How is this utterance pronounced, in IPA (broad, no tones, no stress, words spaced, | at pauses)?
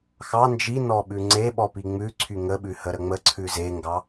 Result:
xɑ nd͡ʒinɔ ɓʉŋ͡ǀeɓɔ piŋ͡mʉǀʰy ŋəɓʉ həɾəŋ͡məǀʰʉ zeŋɡɑ